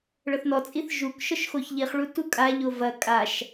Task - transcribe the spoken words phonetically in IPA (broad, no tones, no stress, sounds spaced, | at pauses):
ɭ ɤ θ n ɔ t͡sʼ i θ ʒ u k ʃ ɔ ʃ x o ç ʎ i χ ɭ u t u kʼ a ʎ o v ɐ kʼ a ʃ